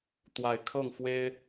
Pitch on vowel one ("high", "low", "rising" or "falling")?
low